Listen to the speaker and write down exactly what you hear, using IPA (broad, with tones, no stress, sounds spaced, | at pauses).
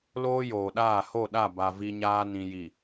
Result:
l oː˦ j oː˨ ɗ aː˦˨ h o˦˨ ɗ a˦˨ b a˨ v i˦ ɲ aː˦ n ĩ˨ j i˨